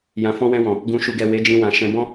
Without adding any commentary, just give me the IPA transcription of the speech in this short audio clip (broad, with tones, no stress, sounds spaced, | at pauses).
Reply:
j ã˨ f ɔ̃˧ w ɛ̃˧ w ɔ̃˨ | ɡ ũ˨ ʃ u˨ ɡ ɛ˨ w e˨˦ d͡ʒ ĩ˧ w ã˨ ʃ ɛ̃˧ b ɔ̃˦